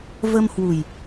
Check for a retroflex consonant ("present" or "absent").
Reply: absent